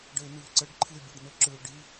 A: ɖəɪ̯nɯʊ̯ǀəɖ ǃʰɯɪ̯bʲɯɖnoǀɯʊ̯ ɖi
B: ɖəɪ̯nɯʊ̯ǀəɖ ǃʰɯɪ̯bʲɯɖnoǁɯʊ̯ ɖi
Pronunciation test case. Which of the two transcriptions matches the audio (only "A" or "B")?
B